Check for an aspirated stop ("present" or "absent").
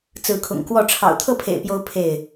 present